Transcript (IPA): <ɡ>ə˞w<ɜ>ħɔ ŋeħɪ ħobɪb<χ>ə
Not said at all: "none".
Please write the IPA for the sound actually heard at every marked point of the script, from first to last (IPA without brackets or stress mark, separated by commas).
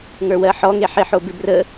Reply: ŋ, ɜ, r